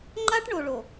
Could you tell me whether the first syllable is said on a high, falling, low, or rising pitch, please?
high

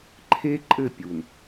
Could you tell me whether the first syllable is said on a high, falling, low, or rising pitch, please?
high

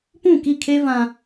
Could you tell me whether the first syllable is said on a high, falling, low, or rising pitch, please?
falling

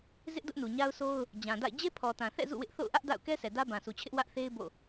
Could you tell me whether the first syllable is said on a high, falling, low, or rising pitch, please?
high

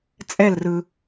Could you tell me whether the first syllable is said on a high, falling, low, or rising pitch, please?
falling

